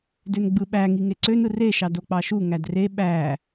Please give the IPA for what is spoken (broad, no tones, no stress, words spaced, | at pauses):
dønɡ͡bɯɓæŋi ŋeǀønɯ reʃɑ dok͡pɑʃu ŋædre ɓæ